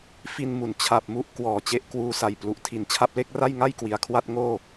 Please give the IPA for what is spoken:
f i˧ n m u˩˦ n t͡ɕʰ a˨˩ p̚ m u˦˥ ʔ k w ɔː˨˩ t͡ɕ e˦˥ ʔ k w uː˧ s a˨˩ j p l u˨˩ ʔ tʰ i˩˦ n t͡ɕʰ a˥˩ p̚ l e˥˩ k̚ r a˥˩ j ŋ a˥˩ j k w i˨˩ a̯ kʰ w a˥˩ t̚ ŋ oː˥˩

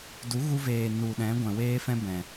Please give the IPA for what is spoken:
d u˨˦ ɣ u˧ v eː˨ n u˨ ɗ ɛ̃˨˦ ɡʷ ɛ̃˨ w eː˦ f ɛ̃˦ b ɛ̃˨

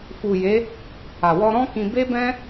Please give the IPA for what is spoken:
f u˨ j e˨˦ | a˨ w ɔ˧ ɾ ɔ̃˦ k ĩ˧ b e˦ b ɛ̃˦

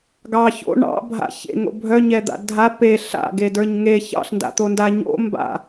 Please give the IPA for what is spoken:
ɡ ɑ ç o̰ ɳ ɑ̰ bʱ a̰ ç ḛ ŋ o̰ bʱ œ ɲ ɛ d̪ a̰ dʱ a p e ɬ a̰ ɡ e d ə˞ ɲ ŋ e ç ɑ̰ ɬ n d a̰ t̪ o n d a ɲ o̰ m b a̰

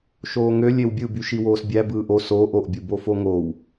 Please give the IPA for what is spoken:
ʃ oː ŋ ø lʲ e w bʲ ɯ b y ʃ i w oː s bʲ æ b ɯː ʔ o s oː ʔ o ʔ bʲ u b o f o ŋ o w

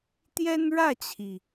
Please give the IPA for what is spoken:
t̪ j ɛ˥ n ɻ ä˥˩ t͡ɕʰ i˩

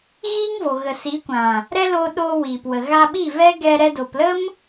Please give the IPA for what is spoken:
ɣ iː˦ ŋ v o˨ ɣ ə˨ s i˨˦ kʷ ã˨ | ɾ ɛ˦ l o˧ ɗ oː˧ w iː˨ p w ə˨ ɣ a˧ ɓ i˦˨ v ɛ˦ ɡ ɛ˧ ɾ ɛ˧ d o˨ p l ə˦ m

